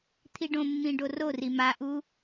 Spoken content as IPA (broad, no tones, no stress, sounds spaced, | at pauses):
t̪ʰ i ɖ õ mː ĩ ɖ o r o r i m a ʔ u